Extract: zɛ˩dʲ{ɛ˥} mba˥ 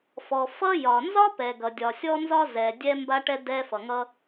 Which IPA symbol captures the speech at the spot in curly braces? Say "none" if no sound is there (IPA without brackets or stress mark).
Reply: ɛ˥